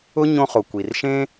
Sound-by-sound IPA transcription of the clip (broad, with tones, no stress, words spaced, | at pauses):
ʊ˥ ɲõ˧χo˩ kʷi˩rʃẽ˥